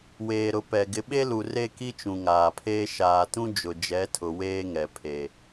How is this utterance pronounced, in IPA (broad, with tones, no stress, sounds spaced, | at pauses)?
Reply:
w eː˨ ɾ ʊ˨ p ɛ˨ ɡ ɪ˨ ɓ e˦ l u˨ r e˦ k i˦ t͡ʃ ũ˨ ŋ aː˨ pʰ eː˦ ʃ aː˨ t ũ˦ d͡ʒ ʊ˨ d͡ʒ ɛ˨˦ tʰ ʊ˨ w eː˦ ŋ ɛ˨ pʰ e˨